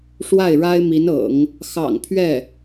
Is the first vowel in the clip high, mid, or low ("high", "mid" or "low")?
low